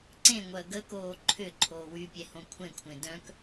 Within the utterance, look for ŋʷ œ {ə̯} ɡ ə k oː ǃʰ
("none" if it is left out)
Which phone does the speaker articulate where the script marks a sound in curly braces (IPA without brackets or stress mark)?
ə̯